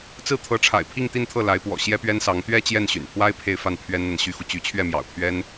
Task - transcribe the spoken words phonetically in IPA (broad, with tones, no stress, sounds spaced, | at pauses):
t͡s ɹ̩˥˩ t̪ʰ ɤ˧˥ ʈ͡ʂʰ a̰˨˩ ɪ̯ pʰ i˥˧ ŋ t̪ i˥˧ n t̪ʰ ɤ˥˩ l a˧˥ ɪ̯ p w ɔ̰˨˩ ɕ j ɛ˥ p ɥ ɛ˥ n s ɑ˧˥ ŋ t̪ ɥ ɛ˥˧ t͡ɕ j ɛ˥˩ n ɕ y̰˨˩ n pʰ w a˥ ɪ̯ pʰ e˥˧ ɪ̯ f a˥˩ n pʰ ɥ ɛ˥ n n̪ a˨ n ɕ y˥ x u˨ t͡ɕ y˧˥ t͡ɕʰ ɥ ɛ˥˩ m j ɑ̰˨˩ ʊ̯ pʰ ɥ ɛ˥ n